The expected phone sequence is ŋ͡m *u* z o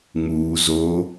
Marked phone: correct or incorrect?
incorrect